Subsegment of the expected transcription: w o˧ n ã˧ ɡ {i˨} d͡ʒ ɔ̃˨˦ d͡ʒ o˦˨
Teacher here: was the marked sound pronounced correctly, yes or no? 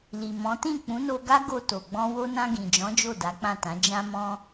no